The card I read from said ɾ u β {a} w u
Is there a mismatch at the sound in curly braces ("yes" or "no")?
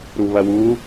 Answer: yes